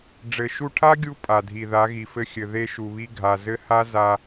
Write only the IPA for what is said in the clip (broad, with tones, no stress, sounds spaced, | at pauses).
ɖ͡ʐ ɘ˨ ʃ u˧ ʈʰ a˦ ɡʲ u˧ pʼ a˨ dʱ i˨ ð a˨˦ ɣ i˨ f ɘ˧ xʲ ɘ˨ ð e˦ ʃ u˨ β i˦ ɡʱ a˨ z ɘ˦ h a˦ z a˧